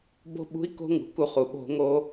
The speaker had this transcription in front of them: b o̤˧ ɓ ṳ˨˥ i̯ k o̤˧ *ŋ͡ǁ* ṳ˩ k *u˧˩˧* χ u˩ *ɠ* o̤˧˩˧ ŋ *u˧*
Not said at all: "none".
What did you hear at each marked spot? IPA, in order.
ŋ, u˧˩˧, ɓ, o˧

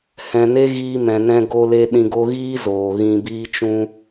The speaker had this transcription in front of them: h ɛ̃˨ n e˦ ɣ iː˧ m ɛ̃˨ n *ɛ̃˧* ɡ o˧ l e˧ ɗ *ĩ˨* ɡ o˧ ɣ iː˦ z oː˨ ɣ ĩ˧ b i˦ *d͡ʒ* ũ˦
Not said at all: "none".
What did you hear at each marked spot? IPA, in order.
ɛ̃˧, ĩ˨, t͡ʃ

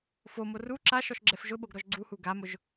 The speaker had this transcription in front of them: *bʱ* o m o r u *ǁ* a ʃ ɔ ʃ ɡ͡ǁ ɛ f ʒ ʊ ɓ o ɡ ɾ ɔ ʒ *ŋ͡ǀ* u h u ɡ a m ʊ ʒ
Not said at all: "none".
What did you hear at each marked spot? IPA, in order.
f, ǁ, ɡ͡ǀ

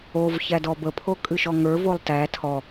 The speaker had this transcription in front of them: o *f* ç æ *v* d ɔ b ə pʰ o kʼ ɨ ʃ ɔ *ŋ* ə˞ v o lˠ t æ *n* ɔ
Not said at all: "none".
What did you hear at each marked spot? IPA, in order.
v, none, ŋ, tʰ

